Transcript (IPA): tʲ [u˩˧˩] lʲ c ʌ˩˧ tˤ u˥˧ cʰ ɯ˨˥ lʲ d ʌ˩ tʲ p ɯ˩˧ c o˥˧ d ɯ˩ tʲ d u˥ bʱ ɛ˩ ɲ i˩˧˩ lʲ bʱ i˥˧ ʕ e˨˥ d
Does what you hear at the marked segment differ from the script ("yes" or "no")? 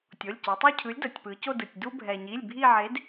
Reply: yes